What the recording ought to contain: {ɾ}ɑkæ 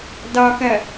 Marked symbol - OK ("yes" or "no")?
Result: no